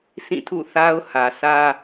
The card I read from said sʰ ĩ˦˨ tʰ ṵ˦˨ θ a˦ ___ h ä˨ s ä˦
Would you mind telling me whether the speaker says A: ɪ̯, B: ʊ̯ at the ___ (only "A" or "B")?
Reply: B